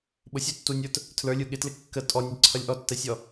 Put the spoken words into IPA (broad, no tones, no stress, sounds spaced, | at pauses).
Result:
ɓ ʊ sʲ u tː u nʲ ə˞ t | tʰ l ə˞ lʲ u ɠ ɪ t l ɪ kː ə tʼ ɔ nʲ ʌ ǀʰ ʌ lʲ ʔ ɔ tː ɛ sʲ ɔ